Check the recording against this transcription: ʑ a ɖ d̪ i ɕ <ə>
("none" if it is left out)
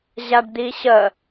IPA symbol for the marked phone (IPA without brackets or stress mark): ə